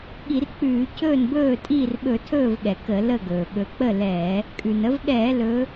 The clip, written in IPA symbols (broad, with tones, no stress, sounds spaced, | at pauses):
ɠ i˧˩˧ r k͡p ʉː˧˩˧ cʰ ɵː˥˩ n b ɵː˥˩ tʼ iː˥˩ r ɓ ɵ˧˩˧ tʰ ɵː˥˩ v ɠ ɛ˩ k ə˧˩˧ l ə˥˩ ɡ ɵː˩ ɠ ɵ˨˦ k͡p ə˥˩ l ɛː˧˩˧ | kʼ ʉ˩ n ə˨˦ v ɠ ɛː˧˩˧ l ɵː˨˦